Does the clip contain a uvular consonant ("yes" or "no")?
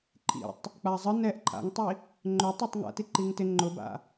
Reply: no